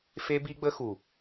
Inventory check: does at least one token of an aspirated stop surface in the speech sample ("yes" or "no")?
no